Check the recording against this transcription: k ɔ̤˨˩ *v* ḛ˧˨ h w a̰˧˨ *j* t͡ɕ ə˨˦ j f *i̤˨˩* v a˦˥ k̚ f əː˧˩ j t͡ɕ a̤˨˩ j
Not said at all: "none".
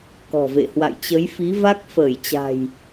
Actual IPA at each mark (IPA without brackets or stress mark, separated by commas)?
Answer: v, j, i˨˦